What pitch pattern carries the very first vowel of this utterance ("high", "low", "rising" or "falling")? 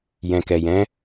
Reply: low